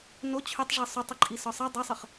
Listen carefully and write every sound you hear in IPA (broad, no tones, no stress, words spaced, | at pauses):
no t͡ɕʰʏtˤʐi sˤotˤɘǃʼi sɒsˤɛ dˤɛsˤəχ